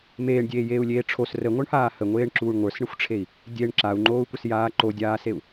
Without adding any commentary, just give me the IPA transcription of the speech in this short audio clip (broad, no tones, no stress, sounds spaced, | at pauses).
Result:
m eː ɳ dʲ eː j eː u̯ lʲ eː ʈ͡ʂʰ o s r ə ŋʷ ə˞ ɳ h aː h ə ŋʷ eː ɳ ǁ uː ɳ ŋʷ ə˞ s ɳ ə xʷ ʈ͡ʂʰ e i̯ | dʲ e ɳ ǁ a u̯ ŋ͡ǃ oː u̯ kʷ ə s j aː ǃ o dʲ aː s e u̯